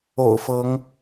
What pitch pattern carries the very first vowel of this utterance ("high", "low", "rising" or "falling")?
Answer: low